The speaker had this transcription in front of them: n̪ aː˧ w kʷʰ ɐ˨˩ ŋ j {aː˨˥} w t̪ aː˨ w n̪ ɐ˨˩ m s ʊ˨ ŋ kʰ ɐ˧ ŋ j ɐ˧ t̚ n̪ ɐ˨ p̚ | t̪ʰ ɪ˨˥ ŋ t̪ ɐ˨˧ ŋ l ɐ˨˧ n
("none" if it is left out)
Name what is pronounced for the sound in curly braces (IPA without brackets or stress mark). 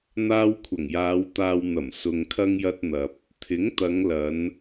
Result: aː˨˧